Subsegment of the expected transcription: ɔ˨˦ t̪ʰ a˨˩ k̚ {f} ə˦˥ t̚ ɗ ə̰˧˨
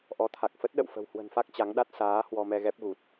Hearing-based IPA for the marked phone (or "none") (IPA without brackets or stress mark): f